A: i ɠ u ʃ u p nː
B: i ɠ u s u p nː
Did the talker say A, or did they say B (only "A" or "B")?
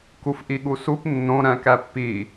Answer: B